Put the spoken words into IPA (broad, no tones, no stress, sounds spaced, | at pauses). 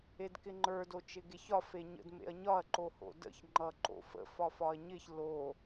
e d k ɪ ŋ͡ǃ ə˞ d o t͡ʃ ɪ ɡ e ç ɒ f e ɲ ə̰ d m ḛ ɐ̯ ɲ ɒ ɐ̯ ǃ o h o̰ d ə̰ ç ŋ͡ǃ ʌ ǃ o̰ f ə̰ f ɒ f ɒ ɐ̯ ɲ ɪ ç l o